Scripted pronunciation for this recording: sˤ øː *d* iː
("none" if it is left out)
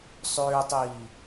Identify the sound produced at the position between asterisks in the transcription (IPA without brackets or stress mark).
tˤ